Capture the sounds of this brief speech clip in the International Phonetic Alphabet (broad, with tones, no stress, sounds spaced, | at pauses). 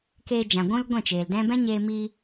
k eː˧ d͡ʒ ã˨ ɡʷ ũ˦ l ɡʷ ɛ̃˦˨ t͡ʃ eː˨ l d ɛ̃˦ b ɛ̃˦ ɲ eː˧ m iː˧